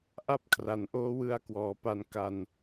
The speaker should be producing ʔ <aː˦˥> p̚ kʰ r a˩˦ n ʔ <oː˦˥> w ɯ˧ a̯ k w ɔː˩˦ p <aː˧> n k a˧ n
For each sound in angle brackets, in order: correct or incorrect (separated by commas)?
incorrect, correct, incorrect